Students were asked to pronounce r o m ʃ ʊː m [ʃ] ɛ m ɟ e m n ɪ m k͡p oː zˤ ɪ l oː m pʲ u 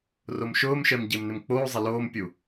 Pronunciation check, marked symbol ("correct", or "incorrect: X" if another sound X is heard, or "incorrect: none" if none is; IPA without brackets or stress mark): correct